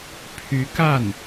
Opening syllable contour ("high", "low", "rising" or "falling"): rising